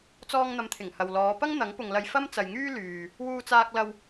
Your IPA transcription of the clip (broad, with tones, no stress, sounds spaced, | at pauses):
t͡s ɔː˥ ŋ n̪ ɐ˧ m t̪ʰ ɪ˨˩ ŋ h ɐ˨ w l ɔː˨˧ p ɐ˥ ŋ n̪ ɐ˨˥ ŋ p ʊ˨ ŋ l ɐ˧ j f ɐ˥ m t͡s ɐ˨ j ŋ yː˥ l yː˨ | w uː˧ t͡s aː˧ k̚ l ɐ˧ w